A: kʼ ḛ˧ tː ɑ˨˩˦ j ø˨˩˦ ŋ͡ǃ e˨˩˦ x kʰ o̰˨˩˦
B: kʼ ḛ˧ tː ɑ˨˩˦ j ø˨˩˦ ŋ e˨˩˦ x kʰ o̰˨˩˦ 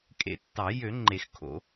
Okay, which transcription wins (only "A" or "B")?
A